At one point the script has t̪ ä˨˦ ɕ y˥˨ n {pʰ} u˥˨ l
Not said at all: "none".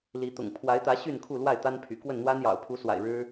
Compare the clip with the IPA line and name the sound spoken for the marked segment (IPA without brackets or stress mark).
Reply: kʰ